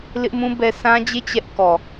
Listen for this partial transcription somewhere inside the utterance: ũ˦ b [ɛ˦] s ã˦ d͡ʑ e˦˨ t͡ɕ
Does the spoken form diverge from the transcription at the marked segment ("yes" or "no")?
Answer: no